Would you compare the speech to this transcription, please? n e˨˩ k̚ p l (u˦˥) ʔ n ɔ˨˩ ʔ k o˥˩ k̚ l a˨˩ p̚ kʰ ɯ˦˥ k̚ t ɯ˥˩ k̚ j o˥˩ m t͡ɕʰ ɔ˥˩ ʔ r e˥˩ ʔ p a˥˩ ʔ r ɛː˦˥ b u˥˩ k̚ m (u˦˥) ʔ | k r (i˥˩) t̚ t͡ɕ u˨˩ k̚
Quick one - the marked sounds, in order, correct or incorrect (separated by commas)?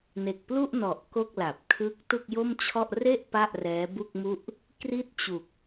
incorrect, incorrect, correct